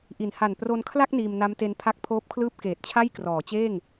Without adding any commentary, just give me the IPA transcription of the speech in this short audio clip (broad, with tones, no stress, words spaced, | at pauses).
ʔi˩˦nha˨˩n pro˧nkʰla˥˩k̚ niː˧mna˦˥mte˦˥n pʰa˦˥k̚ pʰoː˦˥p̚kʰlɯː˥˩p̚ keː˨˩t̚t͡ɕʰa˥˩j krɔː˩˦t͡ɕeː˥˩ŋ